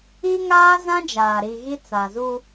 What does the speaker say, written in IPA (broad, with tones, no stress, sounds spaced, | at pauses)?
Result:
i˦ ŋ aː˦ z ã˦ d͡ʒ aː˨ ɾ i˨ ɣ i˦ t͡s a˨ z u˦